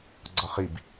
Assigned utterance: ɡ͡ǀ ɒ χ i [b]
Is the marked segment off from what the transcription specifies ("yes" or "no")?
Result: no